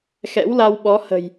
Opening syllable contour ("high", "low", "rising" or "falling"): rising